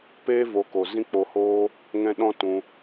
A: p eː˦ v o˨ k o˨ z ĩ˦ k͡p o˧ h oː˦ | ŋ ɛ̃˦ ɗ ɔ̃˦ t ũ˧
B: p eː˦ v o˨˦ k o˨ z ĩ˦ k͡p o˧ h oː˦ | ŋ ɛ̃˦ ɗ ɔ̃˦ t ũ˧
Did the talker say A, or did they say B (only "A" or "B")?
B